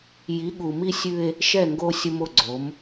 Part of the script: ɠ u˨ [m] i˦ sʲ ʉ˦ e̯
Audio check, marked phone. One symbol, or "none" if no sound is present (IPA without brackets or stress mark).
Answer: m